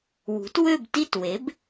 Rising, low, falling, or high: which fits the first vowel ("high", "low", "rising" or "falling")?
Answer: rising